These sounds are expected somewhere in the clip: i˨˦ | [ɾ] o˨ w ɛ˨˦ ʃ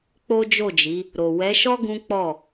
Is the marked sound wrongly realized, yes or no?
no